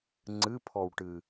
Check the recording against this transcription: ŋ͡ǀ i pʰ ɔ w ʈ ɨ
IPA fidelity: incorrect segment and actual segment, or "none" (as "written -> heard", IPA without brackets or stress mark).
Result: i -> ɨ